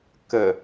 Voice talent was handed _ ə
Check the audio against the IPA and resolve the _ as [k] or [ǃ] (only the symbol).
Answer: k